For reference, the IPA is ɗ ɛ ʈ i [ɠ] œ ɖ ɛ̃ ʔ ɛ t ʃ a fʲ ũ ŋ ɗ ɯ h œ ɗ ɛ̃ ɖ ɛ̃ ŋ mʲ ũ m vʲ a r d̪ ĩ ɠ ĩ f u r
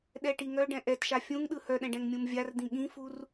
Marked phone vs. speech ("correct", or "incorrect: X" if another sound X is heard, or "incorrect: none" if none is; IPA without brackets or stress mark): incorrect: ŋ